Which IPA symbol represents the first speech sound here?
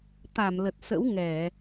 t̪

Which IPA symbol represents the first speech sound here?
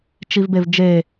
t͡ʃ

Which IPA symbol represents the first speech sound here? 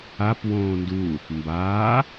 a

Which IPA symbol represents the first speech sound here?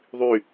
ðˤ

